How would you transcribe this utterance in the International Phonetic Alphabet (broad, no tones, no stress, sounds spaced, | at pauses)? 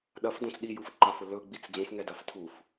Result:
ɗ ɐ f d õ t͡s ɗ i j u f ǃ a f ʊ l ɵ ɡ͡b i t͡s d͡z ũ f ŋ ɛ d a f tʰ u f